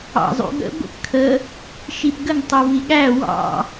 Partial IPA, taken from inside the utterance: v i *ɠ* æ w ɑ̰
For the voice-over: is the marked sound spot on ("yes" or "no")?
yes